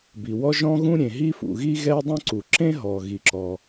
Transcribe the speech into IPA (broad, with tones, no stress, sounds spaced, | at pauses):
b i˩ w ɔ˥ ʒ ɔ̃˥ ɣ ũ˥ ɾʲ ẽ˩ ɦ i˥ f ṵ˩ ɣ i˥ ɣ ɛ˥ dˤ ũ˥ ǀ u˩ ǁ ẽ˥ ɦ ɔ˩ ɣ i˩ ǁ ɔ˩